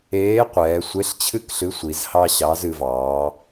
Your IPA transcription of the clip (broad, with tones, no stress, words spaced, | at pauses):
eː˨˥qʷɛː˩˧sʷe˨˥ɬ t͡ɕʰɨ˦kɬɨ˨˥sʷi˩˧z hɑ˦ɕɑ˨˥zɨ˩˧ vɑː˩˧